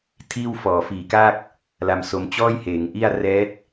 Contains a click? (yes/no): no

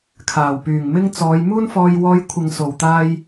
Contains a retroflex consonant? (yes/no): no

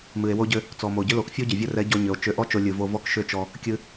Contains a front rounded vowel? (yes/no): yes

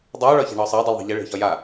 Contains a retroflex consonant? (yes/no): yes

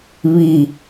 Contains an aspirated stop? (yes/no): no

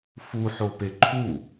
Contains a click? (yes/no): yes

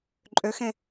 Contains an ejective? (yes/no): yes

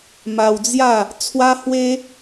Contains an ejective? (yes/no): no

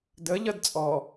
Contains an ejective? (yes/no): yes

